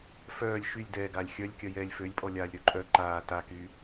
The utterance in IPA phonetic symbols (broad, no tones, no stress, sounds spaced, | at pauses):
f œː lʲ ʃ y lʲ d ɛː ɡ aː lʲ xʲ œ lʲ kʲ œ j ɛː lʲ f ø lʲ pʼ ɔ lʲ aː lʲ ɾ ø ǃʼ œ ǃ aː t a k y